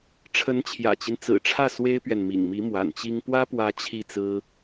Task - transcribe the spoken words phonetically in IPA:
ʈ͡ʂʰə˧˥nt͡ɕʰjä̰˨˩t͡ɕi˦n t͡sɹ̩˨˩ʈ͡ʂʰä˥˩ swe˥ɪ̯pɥɛ˨n mḭ˨˩ŋmi˧˥ mwa̰˨˩nt͡ɕi˥ŋ pwä˥pwä˧˥ t͡ɕʰi˥˩t͡sɹ̩˥

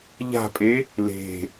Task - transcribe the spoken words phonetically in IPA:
ʎa̤pʼe | le̤

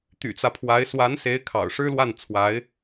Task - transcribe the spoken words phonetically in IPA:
t̪y̰˨˩t͡sä˦pʰwa˧˥ɪ̯ swa˧˥nse˧˥ɪ̯ kʰɑ̰˨˩ʊ̯ʂɻ̩˥lwa˥˩nt͡sʰwa˧˥ɪ̯

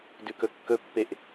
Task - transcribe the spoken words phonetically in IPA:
dʉkɵkːɵpːeʔ

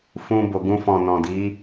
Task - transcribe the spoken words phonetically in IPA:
fũ˧bo˨ɡũ˧ fɔ̃˨nɔ̃˨di˨˦

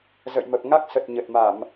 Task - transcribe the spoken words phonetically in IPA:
zə̰˧˨jmə˨˩p̚ ŋa˦˥k̚sə˨˩t̚ ɲə˨˩t̚ma˧˩˨m

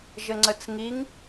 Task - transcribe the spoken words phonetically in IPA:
ʒəŋ͡ǀət͡sŋiŋ

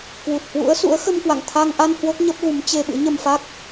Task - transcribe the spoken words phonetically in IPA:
kwu˨˩t̚hwṵ˧˥ə̯ sṵ˧˥ə̯xə˧mkwa̰˧˨ŋ t̪ʰa˧ŋʔa˧n hwo˦˥k̚ɲə˦˥p̚ɣu˨˦m t͡ɕe˧ɓɨ̰˧˥ɲə˧m fa˦˥k̚

